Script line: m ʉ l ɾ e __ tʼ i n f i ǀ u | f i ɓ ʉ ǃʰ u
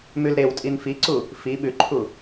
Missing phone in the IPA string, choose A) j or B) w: B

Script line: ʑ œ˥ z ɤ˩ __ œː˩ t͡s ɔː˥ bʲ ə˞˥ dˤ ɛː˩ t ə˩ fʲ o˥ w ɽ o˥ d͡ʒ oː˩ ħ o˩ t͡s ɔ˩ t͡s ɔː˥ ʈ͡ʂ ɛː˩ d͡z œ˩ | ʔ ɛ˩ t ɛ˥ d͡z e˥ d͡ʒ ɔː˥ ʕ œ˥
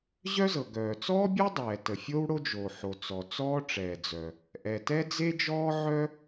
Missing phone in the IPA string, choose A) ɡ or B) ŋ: A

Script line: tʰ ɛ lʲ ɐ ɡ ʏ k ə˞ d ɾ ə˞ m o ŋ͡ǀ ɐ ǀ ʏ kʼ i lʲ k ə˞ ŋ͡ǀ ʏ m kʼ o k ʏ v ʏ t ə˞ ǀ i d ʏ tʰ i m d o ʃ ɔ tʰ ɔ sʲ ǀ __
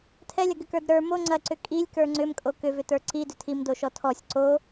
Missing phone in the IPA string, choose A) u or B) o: B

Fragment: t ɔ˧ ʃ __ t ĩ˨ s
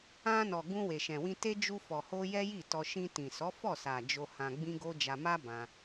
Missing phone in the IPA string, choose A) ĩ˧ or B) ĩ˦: A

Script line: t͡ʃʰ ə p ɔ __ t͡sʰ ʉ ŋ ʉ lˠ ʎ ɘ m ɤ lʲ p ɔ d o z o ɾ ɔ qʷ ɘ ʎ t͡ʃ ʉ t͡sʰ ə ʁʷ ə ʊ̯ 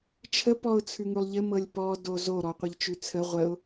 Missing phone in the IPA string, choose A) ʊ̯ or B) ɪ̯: A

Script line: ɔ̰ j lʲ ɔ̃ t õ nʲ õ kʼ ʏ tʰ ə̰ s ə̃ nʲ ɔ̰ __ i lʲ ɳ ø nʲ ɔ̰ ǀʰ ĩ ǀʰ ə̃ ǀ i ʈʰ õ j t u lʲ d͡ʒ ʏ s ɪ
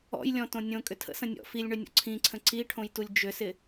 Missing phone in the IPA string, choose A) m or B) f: B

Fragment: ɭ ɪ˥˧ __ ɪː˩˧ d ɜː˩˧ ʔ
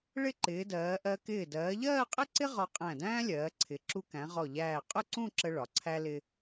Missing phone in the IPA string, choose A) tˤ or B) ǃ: B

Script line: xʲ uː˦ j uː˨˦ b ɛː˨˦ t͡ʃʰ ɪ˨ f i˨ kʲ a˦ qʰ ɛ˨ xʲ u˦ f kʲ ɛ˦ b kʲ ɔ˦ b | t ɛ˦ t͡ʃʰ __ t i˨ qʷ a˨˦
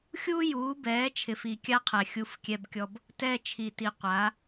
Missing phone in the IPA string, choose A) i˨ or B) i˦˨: A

